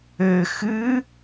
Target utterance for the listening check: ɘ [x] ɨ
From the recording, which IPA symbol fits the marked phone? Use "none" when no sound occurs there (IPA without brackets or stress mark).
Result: x